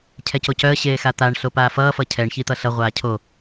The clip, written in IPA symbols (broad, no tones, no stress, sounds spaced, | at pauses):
cʰ ɛ c o c œ ə̯ ɕ eː x a t̪ a ɳ ɬ o p aː f ʌː f ʌ cʰ ɛ ɳ ç i t̪ ʌ ɬ ʌ ʁʷ aː cʰ o